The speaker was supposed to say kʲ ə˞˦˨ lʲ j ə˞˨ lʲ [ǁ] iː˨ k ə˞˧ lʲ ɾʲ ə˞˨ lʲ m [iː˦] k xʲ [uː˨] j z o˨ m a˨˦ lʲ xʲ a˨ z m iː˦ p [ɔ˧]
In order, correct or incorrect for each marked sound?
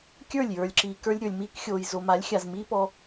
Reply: correct, incorrect, incorrect, correct

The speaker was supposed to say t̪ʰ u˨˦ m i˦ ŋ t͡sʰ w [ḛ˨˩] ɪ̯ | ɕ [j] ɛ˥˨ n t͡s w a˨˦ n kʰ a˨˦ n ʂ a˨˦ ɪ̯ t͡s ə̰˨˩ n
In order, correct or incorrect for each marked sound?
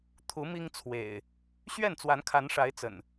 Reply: correct, incorrect

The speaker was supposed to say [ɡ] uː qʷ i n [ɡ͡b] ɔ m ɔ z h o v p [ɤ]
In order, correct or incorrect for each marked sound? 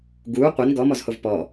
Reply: correct, incorrect, incorrect

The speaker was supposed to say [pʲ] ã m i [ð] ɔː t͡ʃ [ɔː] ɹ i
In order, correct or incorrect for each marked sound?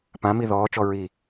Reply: incorrect, correct, incorrect

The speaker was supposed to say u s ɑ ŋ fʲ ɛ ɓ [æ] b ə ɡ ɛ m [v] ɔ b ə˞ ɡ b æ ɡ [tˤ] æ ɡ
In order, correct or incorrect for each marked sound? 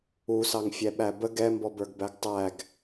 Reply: correct, incorrect, correct

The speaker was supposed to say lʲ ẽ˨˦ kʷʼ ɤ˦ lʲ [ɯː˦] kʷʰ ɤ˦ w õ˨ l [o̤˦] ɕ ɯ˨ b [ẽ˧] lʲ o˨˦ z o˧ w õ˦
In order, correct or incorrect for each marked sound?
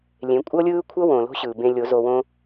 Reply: correct, correct, correct

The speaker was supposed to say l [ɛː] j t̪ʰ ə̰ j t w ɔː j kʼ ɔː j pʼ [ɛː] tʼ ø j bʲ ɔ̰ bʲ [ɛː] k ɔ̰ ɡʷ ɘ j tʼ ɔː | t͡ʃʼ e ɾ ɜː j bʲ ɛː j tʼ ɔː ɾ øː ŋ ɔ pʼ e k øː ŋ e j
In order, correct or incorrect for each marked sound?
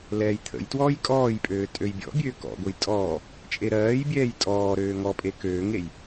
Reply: correct, incorrect, incorrect

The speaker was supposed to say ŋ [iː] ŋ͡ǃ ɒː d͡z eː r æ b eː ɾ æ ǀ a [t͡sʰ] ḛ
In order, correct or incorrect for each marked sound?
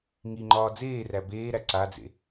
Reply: incorrect, incorrect

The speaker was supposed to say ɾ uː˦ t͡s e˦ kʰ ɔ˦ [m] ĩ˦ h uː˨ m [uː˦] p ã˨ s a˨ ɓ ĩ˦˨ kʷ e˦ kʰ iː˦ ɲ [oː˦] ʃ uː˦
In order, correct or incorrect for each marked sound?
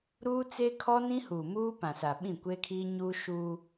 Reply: incorrect, correct, incorrect

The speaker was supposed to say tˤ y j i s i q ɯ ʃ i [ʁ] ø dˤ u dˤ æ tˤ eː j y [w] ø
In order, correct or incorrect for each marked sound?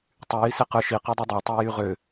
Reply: incorrect, incorrect

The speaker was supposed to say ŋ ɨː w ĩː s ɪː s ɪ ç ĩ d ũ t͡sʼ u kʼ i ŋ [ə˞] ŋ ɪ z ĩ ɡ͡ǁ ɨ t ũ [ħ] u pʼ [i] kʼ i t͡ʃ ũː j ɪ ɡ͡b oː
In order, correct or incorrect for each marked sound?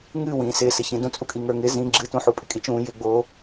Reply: correct, correct, incorrect

